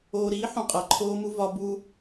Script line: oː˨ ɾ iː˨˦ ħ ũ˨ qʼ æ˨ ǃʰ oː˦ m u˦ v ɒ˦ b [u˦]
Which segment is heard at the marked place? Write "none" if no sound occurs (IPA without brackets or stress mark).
u˦